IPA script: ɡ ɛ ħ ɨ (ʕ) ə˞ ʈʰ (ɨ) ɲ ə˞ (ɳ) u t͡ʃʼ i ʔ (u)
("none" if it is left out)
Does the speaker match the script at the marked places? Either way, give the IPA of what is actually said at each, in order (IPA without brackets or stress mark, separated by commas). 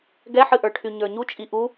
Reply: ʔ, y, ɲ, u